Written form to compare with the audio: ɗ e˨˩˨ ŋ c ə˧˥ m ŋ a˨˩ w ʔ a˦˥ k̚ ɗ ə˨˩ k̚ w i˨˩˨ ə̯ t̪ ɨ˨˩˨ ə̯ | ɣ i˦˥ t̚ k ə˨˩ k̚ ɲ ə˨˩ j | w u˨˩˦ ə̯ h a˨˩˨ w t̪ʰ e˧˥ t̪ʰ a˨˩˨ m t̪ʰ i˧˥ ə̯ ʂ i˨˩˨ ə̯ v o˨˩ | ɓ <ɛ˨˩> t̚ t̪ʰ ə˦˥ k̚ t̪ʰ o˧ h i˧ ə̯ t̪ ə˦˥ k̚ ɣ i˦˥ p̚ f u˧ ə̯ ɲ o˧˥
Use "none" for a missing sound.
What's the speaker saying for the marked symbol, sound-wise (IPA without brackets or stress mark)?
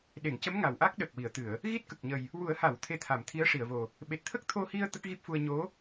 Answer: e˨˩